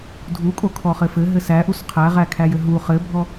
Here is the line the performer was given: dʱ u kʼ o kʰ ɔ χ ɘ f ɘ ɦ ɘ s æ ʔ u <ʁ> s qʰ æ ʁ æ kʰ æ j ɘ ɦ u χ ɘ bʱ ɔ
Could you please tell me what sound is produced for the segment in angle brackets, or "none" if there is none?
none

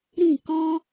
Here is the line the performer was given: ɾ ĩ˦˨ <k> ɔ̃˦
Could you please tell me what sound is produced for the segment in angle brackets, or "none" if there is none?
k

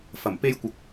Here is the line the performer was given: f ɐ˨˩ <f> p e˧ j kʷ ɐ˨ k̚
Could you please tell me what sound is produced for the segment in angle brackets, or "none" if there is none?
m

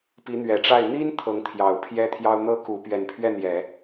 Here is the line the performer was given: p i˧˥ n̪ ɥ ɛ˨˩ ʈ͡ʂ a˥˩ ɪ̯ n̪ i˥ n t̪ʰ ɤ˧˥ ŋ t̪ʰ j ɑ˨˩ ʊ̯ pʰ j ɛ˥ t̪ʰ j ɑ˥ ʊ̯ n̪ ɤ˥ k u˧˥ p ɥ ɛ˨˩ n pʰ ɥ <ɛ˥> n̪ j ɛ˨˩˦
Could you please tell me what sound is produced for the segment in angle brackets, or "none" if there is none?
ɛ˥˩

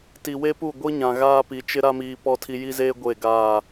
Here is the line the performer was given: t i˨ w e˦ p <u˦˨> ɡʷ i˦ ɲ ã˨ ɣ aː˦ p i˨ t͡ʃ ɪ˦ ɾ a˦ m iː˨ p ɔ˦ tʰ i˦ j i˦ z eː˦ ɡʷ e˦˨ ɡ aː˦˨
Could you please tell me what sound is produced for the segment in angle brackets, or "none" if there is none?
u˦˨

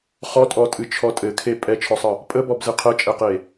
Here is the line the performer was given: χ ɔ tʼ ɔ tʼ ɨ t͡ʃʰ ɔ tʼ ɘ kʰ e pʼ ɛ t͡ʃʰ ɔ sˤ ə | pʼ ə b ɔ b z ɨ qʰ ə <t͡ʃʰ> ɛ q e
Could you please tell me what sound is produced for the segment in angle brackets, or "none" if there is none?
t͡ʃʼ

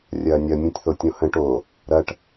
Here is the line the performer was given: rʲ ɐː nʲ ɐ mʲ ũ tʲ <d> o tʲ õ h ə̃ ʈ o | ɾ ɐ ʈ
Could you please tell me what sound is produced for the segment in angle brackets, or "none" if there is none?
θ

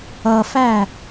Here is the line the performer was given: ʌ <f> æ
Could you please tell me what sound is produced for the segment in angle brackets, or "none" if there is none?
f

